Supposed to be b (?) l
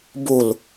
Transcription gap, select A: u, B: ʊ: A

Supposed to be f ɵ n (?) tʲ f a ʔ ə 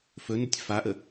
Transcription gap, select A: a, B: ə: B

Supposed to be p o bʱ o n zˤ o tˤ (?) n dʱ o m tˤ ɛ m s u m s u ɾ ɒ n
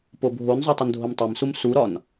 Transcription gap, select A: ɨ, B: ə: B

